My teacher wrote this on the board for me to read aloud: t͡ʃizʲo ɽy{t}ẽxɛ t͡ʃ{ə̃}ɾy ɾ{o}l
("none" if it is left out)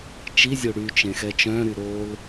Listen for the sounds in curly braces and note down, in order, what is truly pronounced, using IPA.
t͡ʃ, œ̃, o

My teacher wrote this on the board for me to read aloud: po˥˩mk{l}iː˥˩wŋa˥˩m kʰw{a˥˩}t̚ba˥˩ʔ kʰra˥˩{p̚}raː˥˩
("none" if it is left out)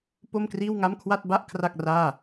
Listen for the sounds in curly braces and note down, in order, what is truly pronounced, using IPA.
r, a˥˩, k̚

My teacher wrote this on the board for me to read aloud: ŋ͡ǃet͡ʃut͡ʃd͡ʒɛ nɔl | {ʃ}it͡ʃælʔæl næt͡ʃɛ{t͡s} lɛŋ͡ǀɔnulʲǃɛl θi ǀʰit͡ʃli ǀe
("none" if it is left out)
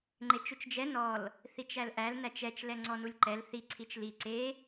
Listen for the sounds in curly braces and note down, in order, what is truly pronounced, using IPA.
θ, t͡ʃ

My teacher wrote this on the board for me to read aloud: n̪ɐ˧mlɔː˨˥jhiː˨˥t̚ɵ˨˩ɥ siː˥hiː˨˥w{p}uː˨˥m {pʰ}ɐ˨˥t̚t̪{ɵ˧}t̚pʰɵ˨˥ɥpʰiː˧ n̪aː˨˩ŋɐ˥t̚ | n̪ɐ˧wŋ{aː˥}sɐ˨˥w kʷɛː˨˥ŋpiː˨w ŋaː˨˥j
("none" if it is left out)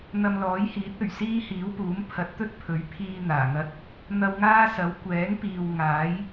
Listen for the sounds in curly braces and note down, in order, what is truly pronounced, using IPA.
p, pʰ, ɵ˥, aː˥

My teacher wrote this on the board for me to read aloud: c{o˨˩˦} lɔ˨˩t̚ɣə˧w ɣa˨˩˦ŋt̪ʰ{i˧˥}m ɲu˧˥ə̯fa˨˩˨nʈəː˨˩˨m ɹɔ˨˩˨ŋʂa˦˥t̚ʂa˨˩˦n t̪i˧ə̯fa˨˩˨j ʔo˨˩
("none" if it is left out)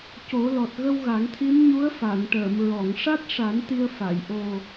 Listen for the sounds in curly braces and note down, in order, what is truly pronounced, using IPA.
o˨˩˦, i˧˥

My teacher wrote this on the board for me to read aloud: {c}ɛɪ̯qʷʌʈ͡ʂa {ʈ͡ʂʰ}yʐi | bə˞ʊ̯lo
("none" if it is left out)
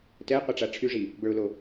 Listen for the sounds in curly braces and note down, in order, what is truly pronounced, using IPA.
t, ʈ͡ʂʰ

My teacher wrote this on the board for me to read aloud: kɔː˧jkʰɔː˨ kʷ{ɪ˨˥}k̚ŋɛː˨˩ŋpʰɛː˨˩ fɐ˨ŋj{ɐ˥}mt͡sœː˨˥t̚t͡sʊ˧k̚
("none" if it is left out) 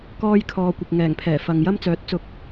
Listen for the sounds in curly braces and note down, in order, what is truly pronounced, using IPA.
ɪ˨, ɐ˥

